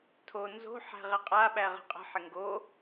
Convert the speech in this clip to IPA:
tʰo nzo̤ ħæ̤ʁɪqʼa ɓæʁə̤qʼə̤ ħɪŋɡo

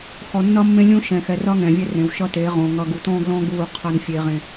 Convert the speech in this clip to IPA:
xɔ˨nːʌ˦mːẽ˦lʲũ˦ ʃɛ̃˨xɛ˨rʌ˦ ŋɛ̃˨vʲɛ˦rẽ˨w ʃʌ˦teː˨˦ʁõ˨ ŋʌ˨ɡu˨tɔ̃ː˦ɡlɔ̃˦ ɡuː˦˨ qʰʌ˦nfʲe˦ʁẽ˦

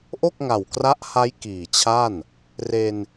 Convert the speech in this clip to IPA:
ʔo˥˩k̚ŋa˨˩wkra˦˥ʔha˦˥j kiː˨˩ t͡ɕʰa˥˩n | re˧n

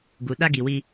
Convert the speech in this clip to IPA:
ɡu˨ ɗa˦ɡi˨wi˦

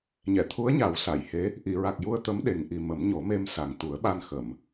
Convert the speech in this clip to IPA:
ɲɛ˨˩˨t̪ʰu˧˥ə̯ɲa˨˩˦w sa˨˩˨jhe˧˥ | ʔi˨˩˨ɹa˨˩k̚ju˧ə̯ t̪ə˧˥mɗe˨˩ŋ ʔi˨˩ mə˨˩˦mɲo˨˩˦me˧m sa˨˩ŋt̪u˨˩˦ə̯ɓa˧n xə˨˩˨m

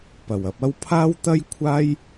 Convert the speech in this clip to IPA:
pɐ˨˩wɐ˧p̚ɐ˥w pʰaː˥wt̪ɐ˥j kʷʰaː˥j

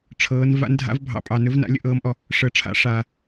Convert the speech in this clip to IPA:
ʈ͡ʂʰɤː˧˥n va̰˧˥ndʱa̰˧˥vbʱɑ̰˧ pʼɑ˧nɵ˧˥vna̰˧˥ lʲə̰˧˥ʔɤː˧˥mʔɔ˧ | ʂəː˧ʈ͡ʂʰa̰˧˥ ʂaː˧

